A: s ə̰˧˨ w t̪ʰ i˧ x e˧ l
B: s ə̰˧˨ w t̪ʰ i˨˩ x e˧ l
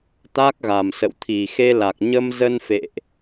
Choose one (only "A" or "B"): B